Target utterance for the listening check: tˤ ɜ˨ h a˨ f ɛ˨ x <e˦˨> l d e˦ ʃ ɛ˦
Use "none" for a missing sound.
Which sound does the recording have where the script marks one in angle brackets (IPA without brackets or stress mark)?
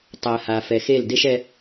e˦˨